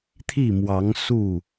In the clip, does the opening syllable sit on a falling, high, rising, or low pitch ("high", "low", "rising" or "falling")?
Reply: falling